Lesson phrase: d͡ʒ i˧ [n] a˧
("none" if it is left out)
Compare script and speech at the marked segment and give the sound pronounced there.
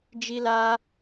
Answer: l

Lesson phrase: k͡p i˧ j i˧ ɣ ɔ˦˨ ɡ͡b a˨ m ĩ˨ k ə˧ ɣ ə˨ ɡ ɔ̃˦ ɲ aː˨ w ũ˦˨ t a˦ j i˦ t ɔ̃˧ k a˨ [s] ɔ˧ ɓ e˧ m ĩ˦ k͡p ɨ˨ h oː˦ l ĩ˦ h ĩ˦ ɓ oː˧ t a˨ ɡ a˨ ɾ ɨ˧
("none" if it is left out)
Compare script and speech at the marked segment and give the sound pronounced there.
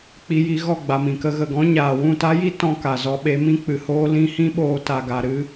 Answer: z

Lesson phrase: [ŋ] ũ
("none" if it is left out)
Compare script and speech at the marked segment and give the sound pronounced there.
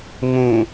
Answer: ŋ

